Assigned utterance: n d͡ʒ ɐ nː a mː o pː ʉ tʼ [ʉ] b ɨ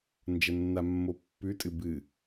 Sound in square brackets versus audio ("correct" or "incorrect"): incorrect